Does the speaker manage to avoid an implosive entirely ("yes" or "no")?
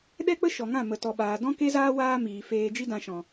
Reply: no